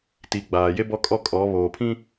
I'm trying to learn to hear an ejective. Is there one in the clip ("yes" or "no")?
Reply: yes